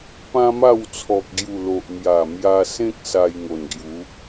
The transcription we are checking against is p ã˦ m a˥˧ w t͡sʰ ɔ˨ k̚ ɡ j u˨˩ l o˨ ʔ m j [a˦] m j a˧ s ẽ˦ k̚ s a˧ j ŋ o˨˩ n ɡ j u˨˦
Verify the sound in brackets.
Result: incorrect: a˨˩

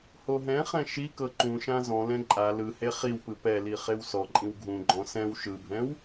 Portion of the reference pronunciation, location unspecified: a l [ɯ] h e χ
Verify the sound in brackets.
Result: correct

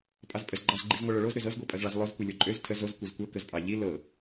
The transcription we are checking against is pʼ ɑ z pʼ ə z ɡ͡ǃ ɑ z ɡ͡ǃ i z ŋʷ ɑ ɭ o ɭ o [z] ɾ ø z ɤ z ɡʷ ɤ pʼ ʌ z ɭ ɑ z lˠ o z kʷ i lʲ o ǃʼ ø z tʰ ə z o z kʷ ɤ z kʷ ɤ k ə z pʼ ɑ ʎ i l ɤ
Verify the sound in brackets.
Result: correct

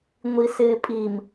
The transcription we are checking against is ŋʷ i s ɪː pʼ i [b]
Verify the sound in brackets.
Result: incorrect: m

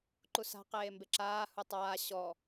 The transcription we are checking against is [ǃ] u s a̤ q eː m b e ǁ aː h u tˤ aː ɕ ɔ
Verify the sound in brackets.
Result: correct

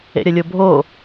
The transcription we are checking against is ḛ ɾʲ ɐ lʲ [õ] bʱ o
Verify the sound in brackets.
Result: incorrect: o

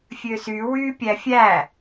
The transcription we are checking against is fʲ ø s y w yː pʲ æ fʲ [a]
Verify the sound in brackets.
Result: incorrect: æ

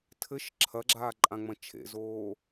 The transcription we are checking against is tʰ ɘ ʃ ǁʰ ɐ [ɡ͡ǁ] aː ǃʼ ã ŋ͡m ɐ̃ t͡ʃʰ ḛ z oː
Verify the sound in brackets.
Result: correct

